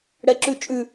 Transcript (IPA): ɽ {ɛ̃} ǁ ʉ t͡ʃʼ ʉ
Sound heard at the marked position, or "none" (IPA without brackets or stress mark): ɛ